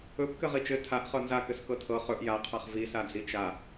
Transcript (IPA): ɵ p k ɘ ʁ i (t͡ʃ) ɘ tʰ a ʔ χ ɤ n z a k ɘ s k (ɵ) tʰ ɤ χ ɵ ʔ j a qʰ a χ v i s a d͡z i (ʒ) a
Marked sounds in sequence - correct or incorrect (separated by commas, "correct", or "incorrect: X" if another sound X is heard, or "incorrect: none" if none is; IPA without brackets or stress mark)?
correct, incorrect: ɤ, incorrect: t͡ʃ